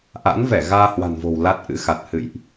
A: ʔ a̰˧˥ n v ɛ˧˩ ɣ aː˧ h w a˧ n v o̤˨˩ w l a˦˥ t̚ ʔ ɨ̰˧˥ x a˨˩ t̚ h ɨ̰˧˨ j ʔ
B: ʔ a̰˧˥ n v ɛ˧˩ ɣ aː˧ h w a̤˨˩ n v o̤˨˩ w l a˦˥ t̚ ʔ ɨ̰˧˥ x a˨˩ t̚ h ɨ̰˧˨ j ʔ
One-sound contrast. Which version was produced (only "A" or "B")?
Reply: B